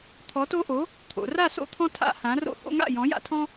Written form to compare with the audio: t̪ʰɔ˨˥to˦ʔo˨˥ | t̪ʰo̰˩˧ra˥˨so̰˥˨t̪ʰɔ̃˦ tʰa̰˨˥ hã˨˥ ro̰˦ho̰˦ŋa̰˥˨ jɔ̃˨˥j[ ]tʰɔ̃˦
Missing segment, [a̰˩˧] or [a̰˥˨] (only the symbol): a̰˥˨